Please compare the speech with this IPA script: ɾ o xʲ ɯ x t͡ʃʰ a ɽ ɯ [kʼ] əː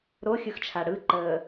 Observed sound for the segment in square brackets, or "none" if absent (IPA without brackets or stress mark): ǃ